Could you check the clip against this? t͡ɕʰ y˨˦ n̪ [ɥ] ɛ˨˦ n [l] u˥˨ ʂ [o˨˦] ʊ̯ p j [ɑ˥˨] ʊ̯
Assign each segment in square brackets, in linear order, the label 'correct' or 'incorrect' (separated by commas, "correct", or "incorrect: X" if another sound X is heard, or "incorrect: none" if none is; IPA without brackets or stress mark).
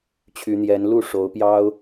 incorrect: j, correct, correct, incorrect: ɑ˦